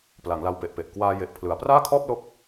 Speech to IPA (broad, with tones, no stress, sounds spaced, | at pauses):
p l a˩˦ ŋ l a˧ w p e˨˩ ʔ p e˨˩ ʔ k w aː˧ j e˨˩ ʔ pʰ l ɯ˩˦ a̯ p r aː˥˩ kʰ ɔː˥˩ p̚ l o˥˩ k̚